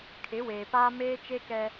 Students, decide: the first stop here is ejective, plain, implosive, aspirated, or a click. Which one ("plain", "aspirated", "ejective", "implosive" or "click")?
aspirated